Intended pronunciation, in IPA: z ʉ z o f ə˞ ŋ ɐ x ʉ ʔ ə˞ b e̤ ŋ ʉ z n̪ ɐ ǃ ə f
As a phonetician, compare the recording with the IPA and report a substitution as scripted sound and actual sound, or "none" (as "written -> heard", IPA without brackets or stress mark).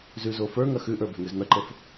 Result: none